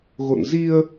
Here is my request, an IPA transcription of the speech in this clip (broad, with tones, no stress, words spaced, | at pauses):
ɣo̰˧˨n zi˧ə̯